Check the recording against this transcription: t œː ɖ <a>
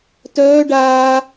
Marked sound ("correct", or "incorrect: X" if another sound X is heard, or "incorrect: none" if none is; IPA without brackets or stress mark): incorrect: aː